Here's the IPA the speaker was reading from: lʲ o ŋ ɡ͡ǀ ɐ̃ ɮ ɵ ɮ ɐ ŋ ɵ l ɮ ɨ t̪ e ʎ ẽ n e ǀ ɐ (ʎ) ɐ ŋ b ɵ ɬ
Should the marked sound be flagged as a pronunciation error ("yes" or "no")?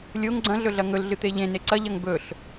no